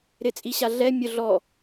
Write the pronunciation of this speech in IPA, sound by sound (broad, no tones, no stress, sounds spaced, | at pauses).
ɾ ɪ t͡sʼ i ɕ a ɮ ɛ mʲ ʊ ɮ ɔ